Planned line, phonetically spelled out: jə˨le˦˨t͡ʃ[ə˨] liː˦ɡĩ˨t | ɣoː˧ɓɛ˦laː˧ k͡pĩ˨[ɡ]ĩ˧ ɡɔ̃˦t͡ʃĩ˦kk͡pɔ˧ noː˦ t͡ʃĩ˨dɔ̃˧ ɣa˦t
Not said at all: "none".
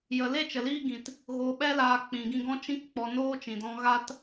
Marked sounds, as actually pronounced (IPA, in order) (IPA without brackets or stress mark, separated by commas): ə˨, ɡ